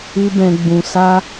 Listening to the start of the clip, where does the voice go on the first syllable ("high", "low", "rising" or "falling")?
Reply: high